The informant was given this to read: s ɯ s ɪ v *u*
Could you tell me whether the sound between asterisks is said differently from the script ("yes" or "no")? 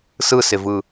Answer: yes